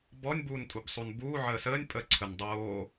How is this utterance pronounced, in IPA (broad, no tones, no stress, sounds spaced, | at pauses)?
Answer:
b ɔ nʲ b uː n tʼ u b sˤ u n b uː ʕ əː s əː nʲ pʼ ə ǀʰ ə n dˤ oː